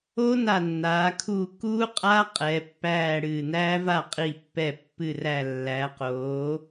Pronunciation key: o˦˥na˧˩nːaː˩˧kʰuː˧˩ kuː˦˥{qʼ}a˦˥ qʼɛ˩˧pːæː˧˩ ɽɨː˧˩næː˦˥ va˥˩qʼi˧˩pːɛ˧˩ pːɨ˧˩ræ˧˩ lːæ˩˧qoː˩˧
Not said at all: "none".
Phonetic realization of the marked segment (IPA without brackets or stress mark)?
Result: qʼ